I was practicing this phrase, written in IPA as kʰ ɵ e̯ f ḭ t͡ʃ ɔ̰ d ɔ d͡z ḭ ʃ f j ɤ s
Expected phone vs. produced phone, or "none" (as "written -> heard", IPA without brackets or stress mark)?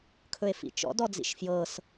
none